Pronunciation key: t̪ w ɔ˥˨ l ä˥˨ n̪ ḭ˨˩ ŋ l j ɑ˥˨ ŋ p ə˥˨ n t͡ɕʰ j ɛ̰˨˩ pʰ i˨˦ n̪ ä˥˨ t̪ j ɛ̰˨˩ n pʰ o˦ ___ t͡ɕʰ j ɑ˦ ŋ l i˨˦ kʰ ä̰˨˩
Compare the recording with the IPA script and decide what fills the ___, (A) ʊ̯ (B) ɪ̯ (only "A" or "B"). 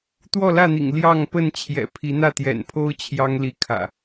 A